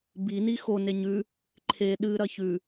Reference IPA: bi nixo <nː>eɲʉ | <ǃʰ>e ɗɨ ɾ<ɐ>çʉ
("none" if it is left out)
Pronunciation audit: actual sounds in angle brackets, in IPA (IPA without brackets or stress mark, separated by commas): n, ǃʰ, ɐ